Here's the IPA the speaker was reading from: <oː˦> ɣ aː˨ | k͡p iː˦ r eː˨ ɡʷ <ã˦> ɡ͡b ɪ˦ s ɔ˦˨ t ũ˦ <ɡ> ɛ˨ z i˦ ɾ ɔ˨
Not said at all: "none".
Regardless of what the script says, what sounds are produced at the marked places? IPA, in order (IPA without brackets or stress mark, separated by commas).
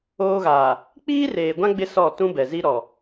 oː˦, ã˦, b